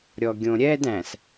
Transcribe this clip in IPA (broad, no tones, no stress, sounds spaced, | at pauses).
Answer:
ɾʲ ɔ ɡʲ õ ɾʲ ɛ d æ̃ s